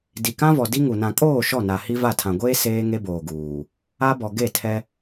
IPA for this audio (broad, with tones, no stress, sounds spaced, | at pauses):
d i˨ k ã˦ v ɔ˨ d i˦ ŋ u˨ n ã˨ kʼ oː˦˨ ʃ ɔ˦˨ n a˨ h i˦ v a˦˨ tʰ ã˨ ɡʷ eː˦ s eː˦ ŋ e˦ b oː˨ ɡ uː˨ | a˦ b ɔ˨ ɡ e˦˨ tʰ ɛ˦